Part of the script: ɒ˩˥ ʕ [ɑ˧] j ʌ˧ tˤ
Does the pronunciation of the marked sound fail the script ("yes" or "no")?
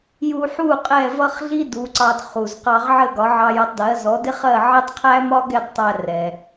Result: no